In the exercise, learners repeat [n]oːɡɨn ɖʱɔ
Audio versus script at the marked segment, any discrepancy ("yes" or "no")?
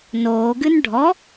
no